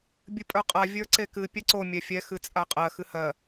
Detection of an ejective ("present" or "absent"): present